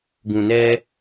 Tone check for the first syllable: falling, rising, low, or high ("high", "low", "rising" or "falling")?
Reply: low